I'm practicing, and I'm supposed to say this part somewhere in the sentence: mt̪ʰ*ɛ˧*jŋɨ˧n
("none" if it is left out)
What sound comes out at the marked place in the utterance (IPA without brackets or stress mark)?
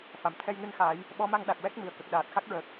ɛ˧